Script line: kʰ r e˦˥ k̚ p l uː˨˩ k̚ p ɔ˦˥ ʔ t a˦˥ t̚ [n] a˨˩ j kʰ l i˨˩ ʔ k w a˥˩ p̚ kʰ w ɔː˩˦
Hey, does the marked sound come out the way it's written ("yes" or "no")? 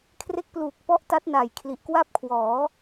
yes